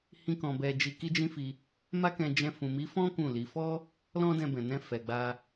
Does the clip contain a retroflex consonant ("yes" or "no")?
no